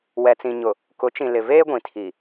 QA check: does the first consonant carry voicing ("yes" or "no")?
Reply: yes